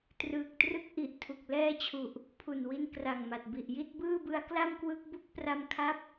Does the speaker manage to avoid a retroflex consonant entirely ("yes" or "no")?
yes